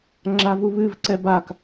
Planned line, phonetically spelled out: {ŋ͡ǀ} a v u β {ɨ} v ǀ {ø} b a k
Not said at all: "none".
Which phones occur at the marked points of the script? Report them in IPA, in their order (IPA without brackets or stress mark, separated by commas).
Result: ŋ͡ǁ, ɨ, ɛ